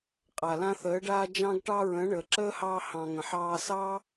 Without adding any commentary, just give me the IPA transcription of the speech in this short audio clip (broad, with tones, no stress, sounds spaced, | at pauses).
qʼ a˨ l ã˧ θ əː˨˦ ɖ aː˧ d͡ʒ ɑ̃˧ ɡ ʈ ɑ˧ ɹ ə̃ː˨˦ ɳ əː˨ ǁ əː˦ h ɑː˧ h ɑ̃˨ ŋ ə̃˨ ħ ɑː˧ s ɑ˦